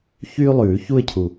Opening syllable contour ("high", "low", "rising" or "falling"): high